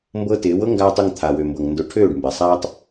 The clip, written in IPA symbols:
m b ɤ˦ t ɪː˨˦ w ɤ˦ ŋ ɡ aː˧ tˤ ʊ˦˨ ŋ t̪ʰ a˨ w ø˨ m b ɤ˨ ŋ n d ʊ˧ ʈʰ øː˦˨ ɖ m b ɛ˨ sˤ aː˦ tˤ

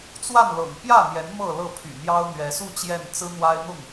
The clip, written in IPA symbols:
t͡s w a˥˨ n l ɤ̰˨˩ ŋ p j ä˥˨ n̪ j ɛ˨˦ n m ɤ˥˨ l ɤ˥˨ pʰ y̰˨˩ n̪ j ɑ˦ ʊ̯ n̪ ɥ ɛ˨˦ s u˥˨ t͡ɕ j ɛ˥˨ n t͡s ɹ̩˦ n̪ w a˦ ɪ̯ n̪ ʊ˥˨ ŋ

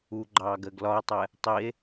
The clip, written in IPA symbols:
u ɡ͡ǃ ɑː ɡ ɜ ɡ l ɒ e̯ tˤ ɛ | tˤ i e̯

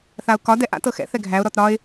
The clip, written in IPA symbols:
θ a ʊ̯ k ɒ d ɛ ʔ a̰ t ɤ x ɛ̰ θ ɛ ɡʱ æ ʊ̯ ɾ ɔ t ɾ ɒ ɪ̯

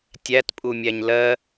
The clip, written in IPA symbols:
tʲ æ t pʼ u mʲ æ ɲ l ɜ

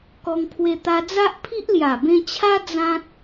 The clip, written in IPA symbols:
k ɔ˧ ŋ pʰ w e˧ t̪ a˧ d͡z a˦ ʔ pʰ i˦ ʔ l j a˨˩ b ẽ˧ t͡ɕʰ a˦ d͡z ã˦ t̚

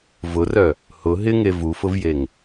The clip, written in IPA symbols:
v ʊ r œ | h ʊ ɦ ɪ ŋ e v u f ʊ v j e ŋ

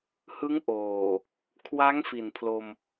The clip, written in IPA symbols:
h ɯ˦˥ ŋ ʔ oː˨˩ | kʰ w a˦˥ ŋ f i˨˩ n pʰ l o˧ m

